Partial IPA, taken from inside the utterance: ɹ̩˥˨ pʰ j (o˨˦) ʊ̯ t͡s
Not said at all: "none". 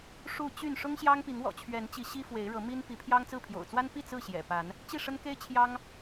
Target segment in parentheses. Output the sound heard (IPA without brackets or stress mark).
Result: o̰˨˩